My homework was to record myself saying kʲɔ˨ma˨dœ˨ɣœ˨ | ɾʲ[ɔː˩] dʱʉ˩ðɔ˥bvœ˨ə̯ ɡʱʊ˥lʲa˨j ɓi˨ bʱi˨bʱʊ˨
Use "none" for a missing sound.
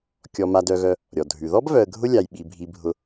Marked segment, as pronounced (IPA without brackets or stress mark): ɔ˩